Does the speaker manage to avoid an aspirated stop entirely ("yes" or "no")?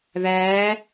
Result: yes